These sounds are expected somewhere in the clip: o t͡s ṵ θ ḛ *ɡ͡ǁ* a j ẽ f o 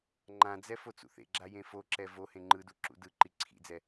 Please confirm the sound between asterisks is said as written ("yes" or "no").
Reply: yes